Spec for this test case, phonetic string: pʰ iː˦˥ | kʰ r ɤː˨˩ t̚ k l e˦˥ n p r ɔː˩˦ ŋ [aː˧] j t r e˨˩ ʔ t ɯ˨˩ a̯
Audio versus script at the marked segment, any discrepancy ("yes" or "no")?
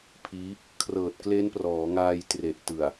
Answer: no